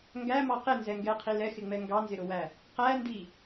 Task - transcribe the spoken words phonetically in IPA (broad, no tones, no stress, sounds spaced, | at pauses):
ŋ ɡ æ m ɑ q ɪ n z ɛ ŋ ɡ ɛ qʰ i l ɛ x ɪ ŋ͡m ɛ ŋ ɡ ɑ n z ɪ ɾ ʊ w æ | q æ n d i